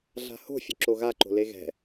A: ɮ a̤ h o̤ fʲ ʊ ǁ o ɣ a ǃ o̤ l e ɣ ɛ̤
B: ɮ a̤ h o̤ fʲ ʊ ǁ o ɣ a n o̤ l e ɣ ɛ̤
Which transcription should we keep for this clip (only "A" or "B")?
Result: A